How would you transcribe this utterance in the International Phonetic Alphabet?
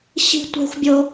ɕi̤˥tʷe̤˥xʷbʲo˥

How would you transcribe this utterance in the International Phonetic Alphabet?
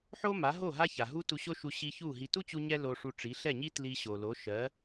ħo˥ma˩˥ ɦo˥˩ ɦa˥ça˩ ɦu˥tu˧ɕo˥ʃu˧ ɕi˧ çu˥˩ɦi˧ tu˥t͡ɕu˧ ɲɛ˥ lo˧ʂu˧ʈ͡ʂi˩˥ ɬɛ˥˩ɲi˥ tli˧ɕo˩lo˩˥ ʃɜ˩˥

